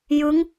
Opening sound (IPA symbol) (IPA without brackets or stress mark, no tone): j